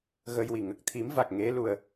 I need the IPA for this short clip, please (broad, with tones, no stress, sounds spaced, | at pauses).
ɣ ə˧ j w i˨˩ ŋ ə˨˩ k̚ t̪ʰ i˨˩˦ m v a˨˩ k̚ ŋ e˧˥ l u˧ ə̯